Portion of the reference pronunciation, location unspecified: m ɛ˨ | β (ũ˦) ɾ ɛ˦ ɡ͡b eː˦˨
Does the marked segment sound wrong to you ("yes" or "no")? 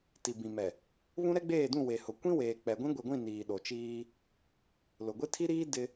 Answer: no